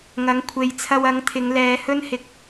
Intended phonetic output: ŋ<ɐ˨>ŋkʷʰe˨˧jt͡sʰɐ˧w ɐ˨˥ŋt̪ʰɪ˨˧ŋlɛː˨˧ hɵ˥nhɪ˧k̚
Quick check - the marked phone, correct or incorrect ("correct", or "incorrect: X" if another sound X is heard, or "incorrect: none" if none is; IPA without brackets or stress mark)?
incorrect: ɐ˨˥